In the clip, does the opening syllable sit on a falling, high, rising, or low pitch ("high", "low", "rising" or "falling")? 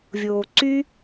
low